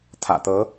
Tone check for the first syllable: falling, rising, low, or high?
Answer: low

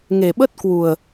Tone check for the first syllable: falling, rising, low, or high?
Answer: low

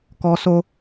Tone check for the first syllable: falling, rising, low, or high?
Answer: high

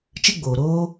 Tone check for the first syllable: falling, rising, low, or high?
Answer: high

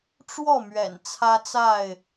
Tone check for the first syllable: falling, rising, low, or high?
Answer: falling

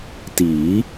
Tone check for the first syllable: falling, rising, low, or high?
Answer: rising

